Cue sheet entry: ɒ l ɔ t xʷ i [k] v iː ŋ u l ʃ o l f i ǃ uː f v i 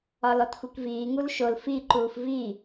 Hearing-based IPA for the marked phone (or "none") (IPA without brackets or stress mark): k